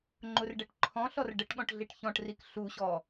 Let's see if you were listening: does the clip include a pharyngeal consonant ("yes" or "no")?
no